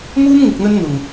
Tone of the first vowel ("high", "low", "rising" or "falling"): high